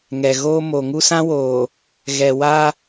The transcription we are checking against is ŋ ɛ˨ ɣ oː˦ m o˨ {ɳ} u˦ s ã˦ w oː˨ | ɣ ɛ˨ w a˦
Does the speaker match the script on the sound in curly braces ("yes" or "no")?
no